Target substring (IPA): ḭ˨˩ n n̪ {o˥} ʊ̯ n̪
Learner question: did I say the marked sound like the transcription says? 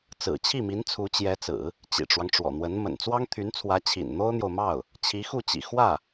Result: yes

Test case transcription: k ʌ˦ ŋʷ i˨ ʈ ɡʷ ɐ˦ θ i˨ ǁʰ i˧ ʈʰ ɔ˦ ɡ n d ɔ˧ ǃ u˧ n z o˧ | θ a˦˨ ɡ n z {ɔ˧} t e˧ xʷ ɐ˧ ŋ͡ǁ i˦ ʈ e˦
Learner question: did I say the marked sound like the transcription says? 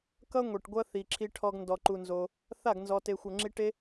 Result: yes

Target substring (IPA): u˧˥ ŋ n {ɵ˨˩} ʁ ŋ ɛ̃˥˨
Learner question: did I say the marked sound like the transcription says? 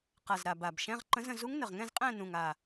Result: no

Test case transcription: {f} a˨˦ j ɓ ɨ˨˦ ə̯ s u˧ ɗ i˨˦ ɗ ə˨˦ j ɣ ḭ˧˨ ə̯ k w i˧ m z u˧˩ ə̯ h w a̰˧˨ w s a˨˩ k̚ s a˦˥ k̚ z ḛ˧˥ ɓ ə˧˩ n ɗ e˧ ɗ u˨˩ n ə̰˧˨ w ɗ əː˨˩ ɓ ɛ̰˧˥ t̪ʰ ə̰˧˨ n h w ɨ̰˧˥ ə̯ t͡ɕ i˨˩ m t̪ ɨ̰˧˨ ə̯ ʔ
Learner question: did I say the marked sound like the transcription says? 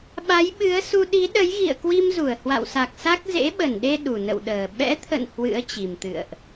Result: no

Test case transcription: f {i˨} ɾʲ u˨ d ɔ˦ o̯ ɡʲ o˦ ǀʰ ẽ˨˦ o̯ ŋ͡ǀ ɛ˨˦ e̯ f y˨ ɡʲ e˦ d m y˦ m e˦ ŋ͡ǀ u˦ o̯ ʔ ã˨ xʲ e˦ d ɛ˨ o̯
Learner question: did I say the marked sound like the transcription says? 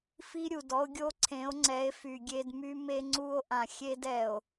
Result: no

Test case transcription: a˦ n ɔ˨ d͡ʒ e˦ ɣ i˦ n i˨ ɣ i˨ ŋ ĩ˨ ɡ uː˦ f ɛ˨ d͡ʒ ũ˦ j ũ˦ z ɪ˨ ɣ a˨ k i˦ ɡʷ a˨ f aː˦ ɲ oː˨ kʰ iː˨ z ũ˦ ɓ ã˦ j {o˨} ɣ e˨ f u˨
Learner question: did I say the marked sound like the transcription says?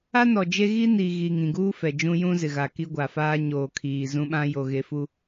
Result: yes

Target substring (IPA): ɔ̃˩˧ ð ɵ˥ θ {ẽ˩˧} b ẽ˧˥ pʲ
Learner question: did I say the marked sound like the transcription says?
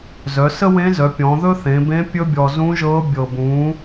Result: yes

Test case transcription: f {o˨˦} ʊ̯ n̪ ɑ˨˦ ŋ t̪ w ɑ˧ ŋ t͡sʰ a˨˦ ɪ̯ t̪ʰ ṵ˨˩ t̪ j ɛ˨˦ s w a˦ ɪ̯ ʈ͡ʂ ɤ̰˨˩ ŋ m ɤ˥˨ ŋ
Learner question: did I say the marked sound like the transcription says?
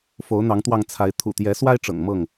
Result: yes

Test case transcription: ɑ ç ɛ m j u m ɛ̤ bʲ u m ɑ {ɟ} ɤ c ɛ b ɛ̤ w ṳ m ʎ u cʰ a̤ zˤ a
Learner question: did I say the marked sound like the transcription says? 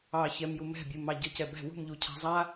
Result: yes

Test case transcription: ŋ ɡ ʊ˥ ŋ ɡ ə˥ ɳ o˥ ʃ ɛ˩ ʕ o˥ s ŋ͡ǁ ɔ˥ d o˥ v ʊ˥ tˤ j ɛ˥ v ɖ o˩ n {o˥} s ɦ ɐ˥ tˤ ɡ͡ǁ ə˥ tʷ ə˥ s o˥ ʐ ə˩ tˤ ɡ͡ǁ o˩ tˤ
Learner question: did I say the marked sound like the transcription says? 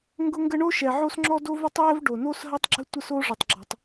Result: yes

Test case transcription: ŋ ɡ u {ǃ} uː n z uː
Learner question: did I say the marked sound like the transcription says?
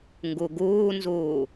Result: no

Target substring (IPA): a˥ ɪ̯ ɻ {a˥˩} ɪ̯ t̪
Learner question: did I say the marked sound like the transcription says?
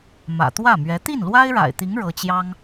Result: no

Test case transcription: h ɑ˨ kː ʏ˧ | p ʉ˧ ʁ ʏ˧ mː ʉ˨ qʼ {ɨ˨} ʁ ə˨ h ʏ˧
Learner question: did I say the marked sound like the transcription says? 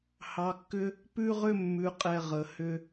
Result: no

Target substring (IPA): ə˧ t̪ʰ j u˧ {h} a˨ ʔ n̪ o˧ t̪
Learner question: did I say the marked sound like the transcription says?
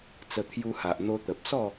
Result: yes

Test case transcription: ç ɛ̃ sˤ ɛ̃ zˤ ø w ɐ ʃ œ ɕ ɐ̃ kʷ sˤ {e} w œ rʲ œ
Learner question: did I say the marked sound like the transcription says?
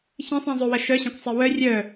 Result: yes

